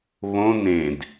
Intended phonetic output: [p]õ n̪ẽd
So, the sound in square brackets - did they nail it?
no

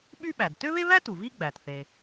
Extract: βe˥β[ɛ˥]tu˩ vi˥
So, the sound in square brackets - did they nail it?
no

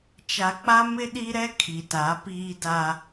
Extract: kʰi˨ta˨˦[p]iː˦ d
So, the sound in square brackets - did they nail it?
yes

